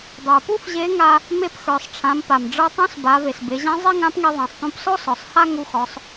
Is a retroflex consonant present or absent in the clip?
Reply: present